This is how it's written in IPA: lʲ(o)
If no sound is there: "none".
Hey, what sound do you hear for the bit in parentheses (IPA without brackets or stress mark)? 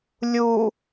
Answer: u